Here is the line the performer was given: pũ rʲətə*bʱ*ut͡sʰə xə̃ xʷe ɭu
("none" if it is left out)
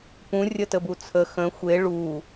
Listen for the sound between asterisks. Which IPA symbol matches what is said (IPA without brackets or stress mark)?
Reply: b